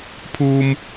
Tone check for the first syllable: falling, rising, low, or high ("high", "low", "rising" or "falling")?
low